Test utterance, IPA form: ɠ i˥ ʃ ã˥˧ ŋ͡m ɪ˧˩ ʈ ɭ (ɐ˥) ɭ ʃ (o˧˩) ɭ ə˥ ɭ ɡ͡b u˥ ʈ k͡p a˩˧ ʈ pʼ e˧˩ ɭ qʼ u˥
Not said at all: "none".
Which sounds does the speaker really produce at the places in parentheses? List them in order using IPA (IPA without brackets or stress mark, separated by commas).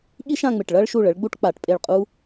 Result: ɐ˥, u˧˩